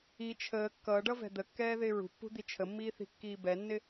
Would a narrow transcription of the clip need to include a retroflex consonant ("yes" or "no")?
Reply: yes